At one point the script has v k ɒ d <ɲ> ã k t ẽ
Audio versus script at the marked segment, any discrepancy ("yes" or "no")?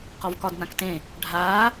yes